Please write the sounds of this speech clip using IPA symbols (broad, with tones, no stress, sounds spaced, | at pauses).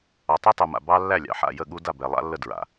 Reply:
ɑ˨ tˤ u˦ tˤ u˨ m a̰˨ b ɑ˦ lː æ˦˨ lʲ ɑ̰˨ ħ a̰˦˨ j ə˦˨ ɠ u˦ d a˦˨ b ɛ˨ lˠ a̰˦ lː ə˦˨ d ɹ a̰˨